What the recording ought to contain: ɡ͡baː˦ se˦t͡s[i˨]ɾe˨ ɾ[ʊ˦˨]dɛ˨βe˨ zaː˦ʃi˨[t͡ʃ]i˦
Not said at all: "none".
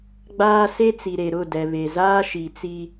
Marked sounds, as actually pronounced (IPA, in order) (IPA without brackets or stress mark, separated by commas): i˨, ʊ˦˨, t͡s